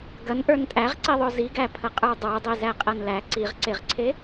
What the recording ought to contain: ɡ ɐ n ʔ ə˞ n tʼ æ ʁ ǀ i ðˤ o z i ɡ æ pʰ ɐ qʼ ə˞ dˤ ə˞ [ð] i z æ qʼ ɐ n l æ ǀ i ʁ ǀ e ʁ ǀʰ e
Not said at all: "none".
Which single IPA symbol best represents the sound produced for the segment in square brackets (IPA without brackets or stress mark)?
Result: dˤ